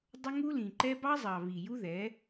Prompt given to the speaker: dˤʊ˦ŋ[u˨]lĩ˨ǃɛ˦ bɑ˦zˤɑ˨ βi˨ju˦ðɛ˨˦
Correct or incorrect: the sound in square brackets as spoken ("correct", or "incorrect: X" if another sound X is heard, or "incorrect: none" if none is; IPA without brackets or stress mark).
incorrect: u˦